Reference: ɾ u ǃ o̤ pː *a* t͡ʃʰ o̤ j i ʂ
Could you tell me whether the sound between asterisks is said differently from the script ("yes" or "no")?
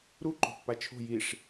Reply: no